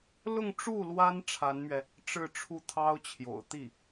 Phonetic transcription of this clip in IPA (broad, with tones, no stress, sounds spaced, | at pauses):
l ʊ˥˧ ŋ ʈ͡ʂ u˥˩ l w a˥ n ʈ͡ʂʰ a˧˥ n m ɥ ɛ˧ | ʈ͡ʂ ɻ̩˥˧ ʈ͡ʂʰ u˥˩ t̪ʰ ɑ˥ ʊ̯ t͡ɕʰ j o̰˨˩ ʊ̯ t̪ i˥˩